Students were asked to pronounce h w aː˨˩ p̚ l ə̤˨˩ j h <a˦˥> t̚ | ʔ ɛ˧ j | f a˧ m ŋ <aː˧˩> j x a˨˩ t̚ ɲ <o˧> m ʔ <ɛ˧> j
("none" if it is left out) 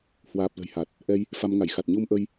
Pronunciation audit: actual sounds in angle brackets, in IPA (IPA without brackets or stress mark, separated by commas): a˨˩, a˧˩, u˧, ə˧